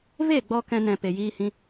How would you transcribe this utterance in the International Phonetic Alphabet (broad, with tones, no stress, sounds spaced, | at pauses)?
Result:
v e˦˨ ɡ͡b ɔ˧ k ɛ̃˧ n ɛ̃˨ p e˨ j iː˦ h ĩ˦